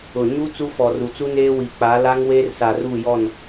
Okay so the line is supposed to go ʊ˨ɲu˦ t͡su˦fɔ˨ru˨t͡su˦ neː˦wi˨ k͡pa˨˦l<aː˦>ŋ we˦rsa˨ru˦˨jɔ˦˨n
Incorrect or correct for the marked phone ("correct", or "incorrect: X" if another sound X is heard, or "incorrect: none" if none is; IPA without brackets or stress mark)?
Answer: incorrect: a˦